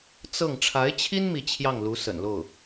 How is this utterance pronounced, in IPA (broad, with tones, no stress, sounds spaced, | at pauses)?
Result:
t͡s ɤ˥˩ ŋ ʈ͡ʂʰ a˧˥ ɪ̯ t͡ɕʰ i˥ n m i˧˥ t͡ɕʰ j ɑ˥˩ ŋ l u˧˥ s ə̰˨˩ n l o˥˩ ʊ̯